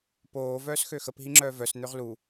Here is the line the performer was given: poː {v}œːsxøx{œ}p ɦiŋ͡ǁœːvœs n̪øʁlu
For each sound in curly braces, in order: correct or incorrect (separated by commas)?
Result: correct, incorrect